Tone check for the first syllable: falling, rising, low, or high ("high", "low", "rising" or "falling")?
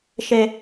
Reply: low